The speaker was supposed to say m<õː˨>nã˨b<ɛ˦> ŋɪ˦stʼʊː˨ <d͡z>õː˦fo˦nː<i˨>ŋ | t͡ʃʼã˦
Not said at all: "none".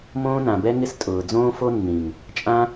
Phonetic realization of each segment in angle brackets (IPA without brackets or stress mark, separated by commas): õː˦, ɛ˦, d͡z, ĩ˨